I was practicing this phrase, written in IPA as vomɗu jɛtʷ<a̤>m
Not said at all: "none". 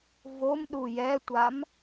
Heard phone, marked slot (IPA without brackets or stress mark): a